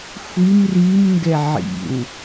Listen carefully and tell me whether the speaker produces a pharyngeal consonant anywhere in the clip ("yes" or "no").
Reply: yes